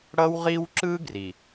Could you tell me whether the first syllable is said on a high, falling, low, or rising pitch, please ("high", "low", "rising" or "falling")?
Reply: high